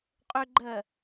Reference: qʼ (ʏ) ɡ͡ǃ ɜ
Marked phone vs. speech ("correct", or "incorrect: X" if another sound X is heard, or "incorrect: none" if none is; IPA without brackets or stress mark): correct